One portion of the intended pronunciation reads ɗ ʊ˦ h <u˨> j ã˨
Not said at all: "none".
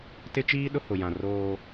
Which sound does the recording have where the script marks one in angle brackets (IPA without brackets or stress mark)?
ʊ˨